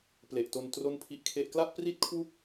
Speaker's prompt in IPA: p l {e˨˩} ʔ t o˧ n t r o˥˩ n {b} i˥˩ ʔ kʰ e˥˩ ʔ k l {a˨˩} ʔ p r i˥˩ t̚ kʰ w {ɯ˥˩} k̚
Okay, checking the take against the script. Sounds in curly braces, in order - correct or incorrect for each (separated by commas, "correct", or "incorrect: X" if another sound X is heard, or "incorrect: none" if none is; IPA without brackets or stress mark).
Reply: correct, incorrect: pʰ, incorrect: a˥˩, incorrect: u˥˩